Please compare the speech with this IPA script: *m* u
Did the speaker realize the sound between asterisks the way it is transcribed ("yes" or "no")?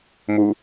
yes